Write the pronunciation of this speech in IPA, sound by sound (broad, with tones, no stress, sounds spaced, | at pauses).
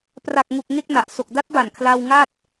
p r a˨˩ k̚ ŋ u˨˩ k̚ ŋ e˥˩ k̚ n a˨˩ ʔ s o˨˩ k̚ d a˦˥ t̚ b a˨˩ n kʰ l a˧ w ŋ a˥˩ t̚